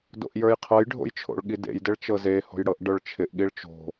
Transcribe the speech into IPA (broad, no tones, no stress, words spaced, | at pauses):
do̰ʔjə˞jqʰɤjɖʱo̰j t͡ʃʰo̰ɭɠidḛjdɪɭ t͡ʃɤzeho̤j ɽɤʔɖə˞ɭt͡ʃʰɪʔɠiɭ t͡ʃo̤